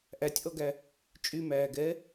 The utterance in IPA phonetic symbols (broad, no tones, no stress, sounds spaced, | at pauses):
ʔ æ tʲ ʔ ɔ ɡ æ | t͡ʃʼ y m æː ɡ ɛː